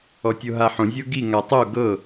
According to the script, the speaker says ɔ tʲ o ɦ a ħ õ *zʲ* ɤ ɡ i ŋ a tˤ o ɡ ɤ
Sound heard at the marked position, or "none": zʲ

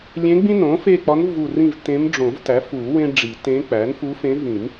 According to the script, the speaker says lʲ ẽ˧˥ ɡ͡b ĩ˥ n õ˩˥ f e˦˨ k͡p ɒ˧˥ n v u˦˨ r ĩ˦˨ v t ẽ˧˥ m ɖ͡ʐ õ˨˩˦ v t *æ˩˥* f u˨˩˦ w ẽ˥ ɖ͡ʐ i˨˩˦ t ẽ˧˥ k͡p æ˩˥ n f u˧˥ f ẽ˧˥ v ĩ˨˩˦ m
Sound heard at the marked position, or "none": æ˩˥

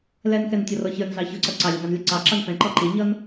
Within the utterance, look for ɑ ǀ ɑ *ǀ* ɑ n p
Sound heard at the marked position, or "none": ǁ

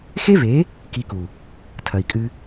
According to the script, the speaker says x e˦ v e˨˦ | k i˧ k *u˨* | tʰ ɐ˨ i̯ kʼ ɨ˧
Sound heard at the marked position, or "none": u˨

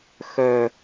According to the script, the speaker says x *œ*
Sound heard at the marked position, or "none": œ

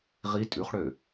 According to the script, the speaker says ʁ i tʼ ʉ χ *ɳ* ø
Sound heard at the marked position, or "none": ɽ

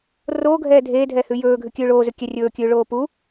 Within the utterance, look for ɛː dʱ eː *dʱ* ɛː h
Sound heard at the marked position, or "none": dʱ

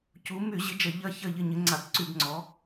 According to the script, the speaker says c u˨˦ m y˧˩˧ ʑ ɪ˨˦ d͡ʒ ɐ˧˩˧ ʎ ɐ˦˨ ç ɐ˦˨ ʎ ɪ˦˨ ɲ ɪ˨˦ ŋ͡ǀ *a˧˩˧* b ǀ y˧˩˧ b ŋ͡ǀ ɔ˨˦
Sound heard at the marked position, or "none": a˧˩˧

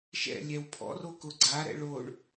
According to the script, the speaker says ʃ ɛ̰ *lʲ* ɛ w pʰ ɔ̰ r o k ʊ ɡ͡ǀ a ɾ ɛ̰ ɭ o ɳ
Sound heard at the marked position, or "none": lʲ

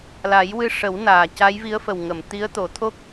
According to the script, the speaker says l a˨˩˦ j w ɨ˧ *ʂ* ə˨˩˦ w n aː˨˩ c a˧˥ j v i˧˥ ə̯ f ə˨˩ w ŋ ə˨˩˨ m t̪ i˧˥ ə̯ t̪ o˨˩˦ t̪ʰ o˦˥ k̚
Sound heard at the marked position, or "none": ʂ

